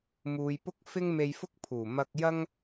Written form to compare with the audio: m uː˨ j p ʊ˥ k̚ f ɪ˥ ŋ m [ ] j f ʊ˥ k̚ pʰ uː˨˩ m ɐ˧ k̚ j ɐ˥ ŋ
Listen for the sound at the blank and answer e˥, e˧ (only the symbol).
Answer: e˧